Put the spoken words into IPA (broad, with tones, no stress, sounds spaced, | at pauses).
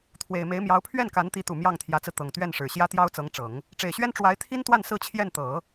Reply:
t̪ʰ w e˨˩ ɪ̯ m e˧˥ ɪ̯ m j ɑ˧˥ ʊ̯ pʰ ɥ ɛ˥˩ n k a˧˥ n t̪ i˧˥ t̪ u˨˩ m j ɑ˥˩ ŋ t̪ʰ j ä˧˥ t͡s ɹ̩˧ t̪ ɤ˨˩ ŋ t̪ ɥ ɛ˥˩ n ʂ ɻ̩˨˩ ɕ j ä˥ t̪ j ɑ˥ ʊ̯ t͡s ɤ˧˥ ŋ ʈ͡ʂ ɤ˨˩˦ ŋ | ʈ͡ʂ e˨˩ ɪ̯ ɕ ɥ ɛ˥ n ʈ͡ʂ w a˧˥ ɪ̯ t̪ʰ i˥ n t̪ w a˥˧ n s ɹ̩˥˧ t͡ɕʰ j ɛ˥˩ n t̪ ɤ˨˩˦